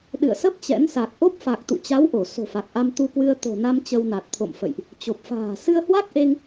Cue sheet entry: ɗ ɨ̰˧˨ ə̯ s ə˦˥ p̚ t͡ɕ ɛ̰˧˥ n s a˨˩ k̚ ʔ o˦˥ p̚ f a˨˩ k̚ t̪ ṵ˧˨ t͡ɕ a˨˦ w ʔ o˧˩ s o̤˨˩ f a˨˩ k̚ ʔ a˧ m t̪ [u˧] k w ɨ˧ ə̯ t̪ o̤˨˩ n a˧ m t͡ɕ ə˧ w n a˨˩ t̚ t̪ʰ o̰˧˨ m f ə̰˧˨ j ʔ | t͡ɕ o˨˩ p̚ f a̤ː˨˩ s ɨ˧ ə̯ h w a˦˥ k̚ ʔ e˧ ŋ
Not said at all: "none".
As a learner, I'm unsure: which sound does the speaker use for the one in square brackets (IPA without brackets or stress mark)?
u˧